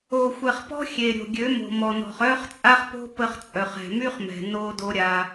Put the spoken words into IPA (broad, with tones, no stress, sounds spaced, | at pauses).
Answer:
o˨ xʷ ɛ˨ χ p ɔ̤˦ xʲ e˨ ɾʲ o̤˨ ɡʲ ø˨˦ m o̤˨ m ɔ˨ n ɔ̤˨ χ œ˦ χ t͡sʼ a˦ χ p o̤˦ p ə˦ χ t͡sʼ œ˨ χ ɛ̤˨ m y˦ χ m ɛ̤˨ n o˦ d o˦ ɾʲ a˦